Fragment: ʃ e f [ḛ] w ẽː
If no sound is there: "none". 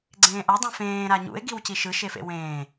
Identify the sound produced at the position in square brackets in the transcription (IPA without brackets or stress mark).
ḛ